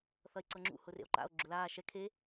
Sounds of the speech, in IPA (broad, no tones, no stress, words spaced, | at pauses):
θʌe̯ǀɤŋ͡ǁṵ hʊrḛo̯ǃa̰o̯ ɡ͡ǁʊlaː ʃɛ kʰe